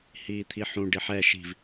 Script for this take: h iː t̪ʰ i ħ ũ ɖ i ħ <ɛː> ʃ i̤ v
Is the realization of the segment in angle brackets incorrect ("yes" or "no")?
yes